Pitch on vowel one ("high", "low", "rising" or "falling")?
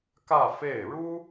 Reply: falling